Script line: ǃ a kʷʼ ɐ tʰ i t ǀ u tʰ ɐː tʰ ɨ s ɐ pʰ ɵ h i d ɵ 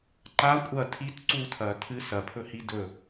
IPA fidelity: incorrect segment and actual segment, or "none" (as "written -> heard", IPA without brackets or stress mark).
none